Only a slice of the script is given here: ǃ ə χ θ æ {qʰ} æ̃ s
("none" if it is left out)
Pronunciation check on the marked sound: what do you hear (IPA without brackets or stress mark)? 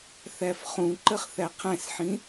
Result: qʰ